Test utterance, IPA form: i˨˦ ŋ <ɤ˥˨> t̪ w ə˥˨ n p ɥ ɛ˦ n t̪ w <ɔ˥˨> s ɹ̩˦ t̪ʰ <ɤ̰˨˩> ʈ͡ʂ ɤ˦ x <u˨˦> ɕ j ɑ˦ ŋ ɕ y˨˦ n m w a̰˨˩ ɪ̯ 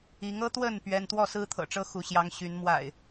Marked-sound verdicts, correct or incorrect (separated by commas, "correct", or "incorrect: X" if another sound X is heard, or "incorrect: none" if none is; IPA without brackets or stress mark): incorrect: ɤ˦, correct, correct, correct